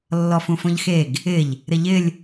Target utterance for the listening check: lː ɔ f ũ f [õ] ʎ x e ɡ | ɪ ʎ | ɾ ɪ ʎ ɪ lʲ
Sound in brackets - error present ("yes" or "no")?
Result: no